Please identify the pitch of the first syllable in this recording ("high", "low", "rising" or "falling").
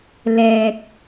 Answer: low